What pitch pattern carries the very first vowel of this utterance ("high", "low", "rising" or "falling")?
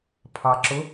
low